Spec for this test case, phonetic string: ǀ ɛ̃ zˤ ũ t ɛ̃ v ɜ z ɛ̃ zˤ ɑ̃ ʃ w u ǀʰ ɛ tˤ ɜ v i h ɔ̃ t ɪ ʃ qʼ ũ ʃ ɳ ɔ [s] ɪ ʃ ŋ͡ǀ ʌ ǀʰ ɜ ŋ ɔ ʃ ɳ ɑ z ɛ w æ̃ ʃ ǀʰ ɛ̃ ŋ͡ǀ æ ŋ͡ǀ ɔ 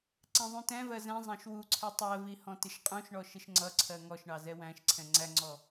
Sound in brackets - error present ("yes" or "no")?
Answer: yes